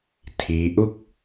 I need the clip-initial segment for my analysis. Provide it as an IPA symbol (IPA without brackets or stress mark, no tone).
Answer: tʰ